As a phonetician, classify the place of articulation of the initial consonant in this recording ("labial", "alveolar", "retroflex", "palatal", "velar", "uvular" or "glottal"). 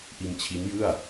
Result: glottal